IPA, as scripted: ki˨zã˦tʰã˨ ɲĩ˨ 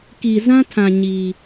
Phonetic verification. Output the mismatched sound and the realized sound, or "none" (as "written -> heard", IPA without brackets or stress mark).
ĩ˨ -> i˨